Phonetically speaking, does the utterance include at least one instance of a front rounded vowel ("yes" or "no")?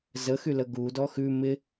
yes